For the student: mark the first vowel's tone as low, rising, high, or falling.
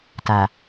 low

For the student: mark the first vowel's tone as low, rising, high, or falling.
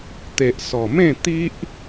low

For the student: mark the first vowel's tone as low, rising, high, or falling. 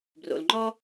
low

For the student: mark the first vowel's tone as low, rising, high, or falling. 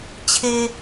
low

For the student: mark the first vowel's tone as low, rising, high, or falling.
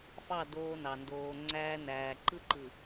falling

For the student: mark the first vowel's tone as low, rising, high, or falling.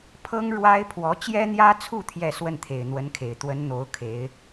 high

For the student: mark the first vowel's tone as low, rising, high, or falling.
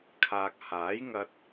low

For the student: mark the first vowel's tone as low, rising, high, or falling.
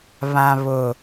low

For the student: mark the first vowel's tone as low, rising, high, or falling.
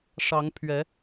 rising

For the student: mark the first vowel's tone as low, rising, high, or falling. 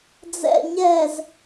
low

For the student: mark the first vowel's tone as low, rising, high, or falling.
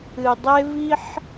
low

